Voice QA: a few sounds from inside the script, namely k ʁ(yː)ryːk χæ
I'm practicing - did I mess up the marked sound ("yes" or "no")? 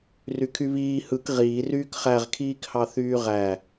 yes